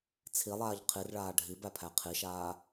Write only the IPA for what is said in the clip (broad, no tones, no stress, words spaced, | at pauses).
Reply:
t͡sʰilˠaːʎ qʰirɭaː ɖʱibæpʰæ qʰiʃaː